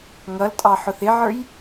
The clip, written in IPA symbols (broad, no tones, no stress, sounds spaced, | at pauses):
ŋ ʌ l tʼ ɑ ħ ʊ θ ɪ ʕ ə˞ j